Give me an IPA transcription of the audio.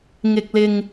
ŋ ɪ˧ k̚ l ɪ˧ ŋ

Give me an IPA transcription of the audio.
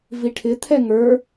v i ʈʰ ɪ t̪ʰ ɛ ŋ ə˞

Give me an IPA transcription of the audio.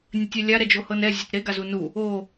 nʲ ə tʲ ɛ lʲ a ɾ ɛ d͡ʒ o h ɤ n ɛ zʲ e t ɾ e ɡ a z u n u | o

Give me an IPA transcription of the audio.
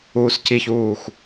uː s c i ç uː x

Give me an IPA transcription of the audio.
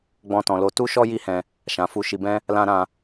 ɡ͡b ɔ̃˦ t ɔ̃˧ l o˦ t u˦ ʃ ɔ˦ j i˦ h ɛ̃˧ | ʃ ã˧ f u˧ ʃ i˧ b ɛ̃˦ | l ã˦ ɾ ã˧

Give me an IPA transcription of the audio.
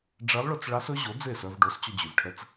ɖ͡ʐ ɛ˧˥ lˠ ɭ ɵ˧ t͡s ɭ ɑ˧˥ s ɵ˧˥ ʑ o˩˥ d͡z e˥˩ s œ˧ v ɖ o˩˥ s t͡ɕ ɵ˧ d͡ʑ y˩ v ʈʰ ɛ˧ t͡s

